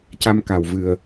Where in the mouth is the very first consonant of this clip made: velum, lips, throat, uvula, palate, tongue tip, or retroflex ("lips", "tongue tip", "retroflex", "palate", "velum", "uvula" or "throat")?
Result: palate